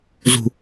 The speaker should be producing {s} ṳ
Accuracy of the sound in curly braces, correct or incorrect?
incorrect